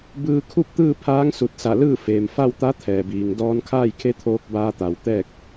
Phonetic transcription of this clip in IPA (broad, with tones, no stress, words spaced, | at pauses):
bɯː˧kʰu˥˨p̚t̪ɯː˥˨ pʰaː˧˥ŋsu˧˩t̚sa˧˩lɯː˥˨ feː˩mfa˥˨wt̪a˧˥ t̪ʰɛː˩biː˩ŋ dɔː˧nkʰaː˥˨jkʰe˧˥t̪ʰoː˧k̚ baː˧t̪a˩w t̪ɛː˥˨k̚